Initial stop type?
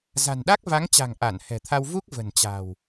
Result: implosive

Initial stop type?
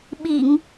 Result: implosive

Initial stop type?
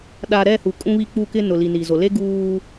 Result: implosive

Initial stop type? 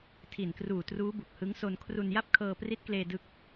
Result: aspirated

